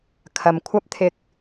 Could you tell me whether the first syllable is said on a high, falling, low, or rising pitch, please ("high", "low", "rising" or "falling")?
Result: low